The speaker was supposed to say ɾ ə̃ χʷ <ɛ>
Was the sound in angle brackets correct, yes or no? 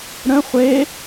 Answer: no